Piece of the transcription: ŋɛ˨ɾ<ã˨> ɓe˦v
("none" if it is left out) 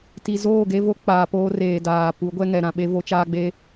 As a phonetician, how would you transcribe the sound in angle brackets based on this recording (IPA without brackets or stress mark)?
ã˨